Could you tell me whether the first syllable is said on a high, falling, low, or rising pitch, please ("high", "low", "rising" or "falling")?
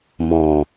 low